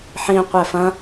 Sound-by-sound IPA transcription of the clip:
ħĩ qʷɛfɐ̃

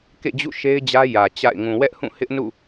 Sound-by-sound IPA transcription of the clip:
kḛ˦˨d͡ʑṵ˦˨ ʃe˦ɪ̯d͡ʑä˦ jä˨t͡ɕa̰˦˨ɪ̯ ŋũ˨wɛ˦ʔhũ˦˨ hɪ˦ʔnṵ˦˨

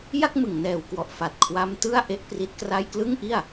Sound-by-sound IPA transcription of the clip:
ja˥˩k̚mɯ˨˩ŋnɛː˨˩wkwɔ˨˩ʔ fa˨˩t̚kʰwa˦˥m tɯ˥˩a̯ ʔe˦˥ʔpri˦˥t̚kra˥˩j klɯ˥˩ŋʔi˥˩a̯

